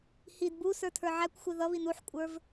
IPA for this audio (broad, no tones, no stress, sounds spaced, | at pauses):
h i d b u s ə˞ tʰ ə˞ ʕ æ kʷ xʷ ɪ ð ʌ β i n u ħ kʷʼ ə˞ v